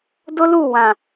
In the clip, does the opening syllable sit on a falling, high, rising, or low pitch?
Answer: high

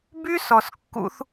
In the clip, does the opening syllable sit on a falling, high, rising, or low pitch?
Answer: high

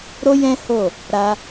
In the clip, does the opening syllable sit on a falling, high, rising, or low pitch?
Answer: high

